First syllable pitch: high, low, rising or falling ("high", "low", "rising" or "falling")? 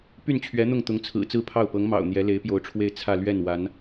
falling